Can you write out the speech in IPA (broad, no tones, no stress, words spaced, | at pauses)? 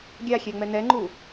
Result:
ɡʲaxʲɛ ŋ͡mɛnɛŋ͡ǃu